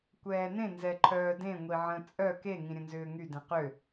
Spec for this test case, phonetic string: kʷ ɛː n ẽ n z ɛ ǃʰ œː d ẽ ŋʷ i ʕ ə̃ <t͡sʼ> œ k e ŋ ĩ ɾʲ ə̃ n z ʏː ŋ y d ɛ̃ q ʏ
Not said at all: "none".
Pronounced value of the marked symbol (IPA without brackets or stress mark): t͡sʼ